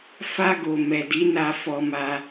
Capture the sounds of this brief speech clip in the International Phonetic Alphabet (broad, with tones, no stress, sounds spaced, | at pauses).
f a˧ ɡ o˨ m ɛ˨ d i˨˦ n a˧ f ɔ˧ m a˧